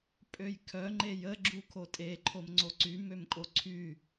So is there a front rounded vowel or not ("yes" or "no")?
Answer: yes